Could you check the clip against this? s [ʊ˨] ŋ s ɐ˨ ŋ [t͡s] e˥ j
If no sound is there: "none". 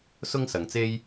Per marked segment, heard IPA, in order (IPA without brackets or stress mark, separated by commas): ʊ˥, t͡s